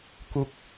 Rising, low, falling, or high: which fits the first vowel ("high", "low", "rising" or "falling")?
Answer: falling